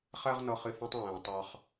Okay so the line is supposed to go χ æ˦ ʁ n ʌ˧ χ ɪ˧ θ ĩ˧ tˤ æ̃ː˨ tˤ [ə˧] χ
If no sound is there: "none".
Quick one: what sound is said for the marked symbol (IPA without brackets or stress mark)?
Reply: ɑ˧